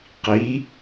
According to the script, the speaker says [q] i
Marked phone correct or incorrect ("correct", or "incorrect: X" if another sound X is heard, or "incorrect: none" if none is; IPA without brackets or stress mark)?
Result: correct